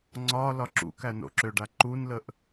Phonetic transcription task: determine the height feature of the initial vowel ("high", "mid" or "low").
low